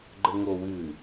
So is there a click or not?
yes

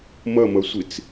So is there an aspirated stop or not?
no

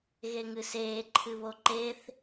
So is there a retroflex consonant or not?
no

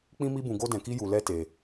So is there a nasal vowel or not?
yes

